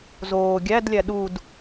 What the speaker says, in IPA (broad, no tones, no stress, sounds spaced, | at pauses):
z oː ɡʲ æ d lʲ æ ɗ u d